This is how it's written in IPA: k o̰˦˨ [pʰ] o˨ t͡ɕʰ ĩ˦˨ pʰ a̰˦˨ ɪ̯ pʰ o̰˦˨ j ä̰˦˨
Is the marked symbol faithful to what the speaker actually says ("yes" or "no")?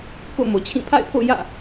no